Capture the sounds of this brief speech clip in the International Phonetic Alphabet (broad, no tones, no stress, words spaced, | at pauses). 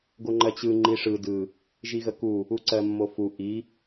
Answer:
ɡoŋ͡ǃɜt͡ɕɯ ŋ͡ǃiʂɯ dɯ | ʒiɣəku | uǀɜmːofu ʔi